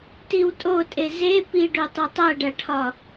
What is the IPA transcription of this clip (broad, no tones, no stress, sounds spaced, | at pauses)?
t i w tʼ o tʼ e z e p i ɖ o tˤ e tˤ æ ɖ æ ʈʰ ɒ